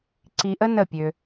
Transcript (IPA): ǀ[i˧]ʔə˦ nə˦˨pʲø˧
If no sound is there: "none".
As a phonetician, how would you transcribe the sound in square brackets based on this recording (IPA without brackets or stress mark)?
i˧